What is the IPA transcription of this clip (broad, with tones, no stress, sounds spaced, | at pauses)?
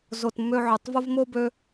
z o˨ t mː ø˧ ʕ ø˨ tˤ v o˦ v m o˦ b ø˦